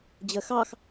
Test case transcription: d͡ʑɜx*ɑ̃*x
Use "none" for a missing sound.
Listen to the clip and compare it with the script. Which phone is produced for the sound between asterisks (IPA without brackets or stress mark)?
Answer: ɑ